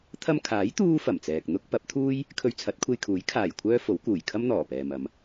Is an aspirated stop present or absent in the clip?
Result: present